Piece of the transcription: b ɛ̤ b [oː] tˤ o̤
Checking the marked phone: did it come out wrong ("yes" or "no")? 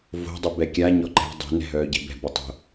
yes